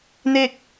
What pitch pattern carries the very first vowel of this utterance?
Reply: falling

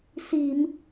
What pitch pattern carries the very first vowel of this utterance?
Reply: low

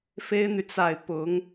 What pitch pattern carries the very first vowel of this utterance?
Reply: high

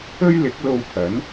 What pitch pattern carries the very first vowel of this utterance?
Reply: high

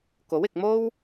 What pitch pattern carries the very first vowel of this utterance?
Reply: rising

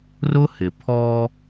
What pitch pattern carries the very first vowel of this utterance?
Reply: high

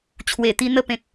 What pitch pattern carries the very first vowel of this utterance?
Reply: low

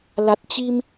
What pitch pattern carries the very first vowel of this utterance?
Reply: low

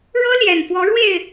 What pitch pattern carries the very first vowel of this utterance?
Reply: high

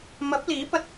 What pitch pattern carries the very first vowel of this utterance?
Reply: rising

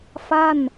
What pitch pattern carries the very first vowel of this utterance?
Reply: falling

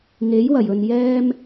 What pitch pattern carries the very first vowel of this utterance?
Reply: rising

